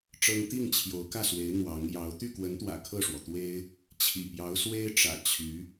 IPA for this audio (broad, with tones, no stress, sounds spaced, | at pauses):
ʈ͡ʂ ɤ˥ ŋ t̪ i˥˩ ŋ t͡ɕʰ j o˧˥ ʊ̯ k ä˥˩ s w e˧˥ ɪ̯ n̪ w ɑ˧˥ ŋ j ɑ˧˥ ʊ̯ t̪ y˥˩ k w ə˧˥ n t̪ w ä̰˨˩ kʰ ɤ˥˩ ʂ w ɔ˩ t̪ w e˥ ɪ̯ | t͡ɕʰ ḭ˨˩ p j ɑ˧˥ ʊ̯ s w e˥ ɪ̯ ʈ͡ʂ ä̰˨˩ t͡ɕʰ y˧˥